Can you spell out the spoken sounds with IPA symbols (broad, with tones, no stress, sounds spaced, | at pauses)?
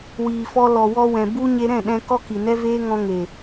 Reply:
w iː˨ f ɔ˧ l ɔ˨ w ɔ˧ w ɛ̃˨ b u˧ ɲ e˧ ɾ ɛ̃˦˨ ɗ ɛ̃˧ k ɔ˦ k i˨ n ɛ˦ v eː˦ ŋ ɔ̃˧ ŋ e˨